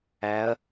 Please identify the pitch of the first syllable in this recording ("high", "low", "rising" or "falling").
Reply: rising